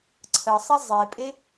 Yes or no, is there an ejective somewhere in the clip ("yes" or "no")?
yes